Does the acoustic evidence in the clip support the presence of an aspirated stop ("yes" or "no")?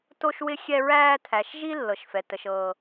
yes